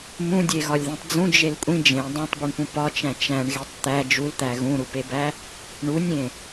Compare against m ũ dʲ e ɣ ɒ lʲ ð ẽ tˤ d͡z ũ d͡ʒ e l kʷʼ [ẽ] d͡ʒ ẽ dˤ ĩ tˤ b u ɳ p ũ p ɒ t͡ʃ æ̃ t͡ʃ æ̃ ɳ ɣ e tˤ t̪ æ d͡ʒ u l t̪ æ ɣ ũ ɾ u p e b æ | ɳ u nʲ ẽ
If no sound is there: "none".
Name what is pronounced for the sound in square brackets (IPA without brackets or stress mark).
ĩ